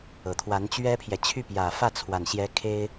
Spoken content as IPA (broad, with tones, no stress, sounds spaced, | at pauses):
ɤ˨˩ t̪ʰ w a˧˥ n t͡ɕ ɥ ɛ˥ pʰ j ɛ˨ t͡ɕʰ y˥˩ p j ä˨˩ f ä˥˩ t͡sʰ w a˨˩ n ɕ j ɛ˧˥ kʰ e˥ ɪ̯